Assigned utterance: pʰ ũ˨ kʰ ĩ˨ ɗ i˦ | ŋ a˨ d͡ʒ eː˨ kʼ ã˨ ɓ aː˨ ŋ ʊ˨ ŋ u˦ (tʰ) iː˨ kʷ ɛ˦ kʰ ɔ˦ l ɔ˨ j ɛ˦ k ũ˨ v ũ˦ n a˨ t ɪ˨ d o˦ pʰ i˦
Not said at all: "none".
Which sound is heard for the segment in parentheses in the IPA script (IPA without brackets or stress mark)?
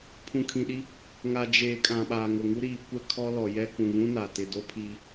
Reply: ɾ